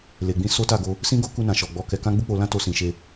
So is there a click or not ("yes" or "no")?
no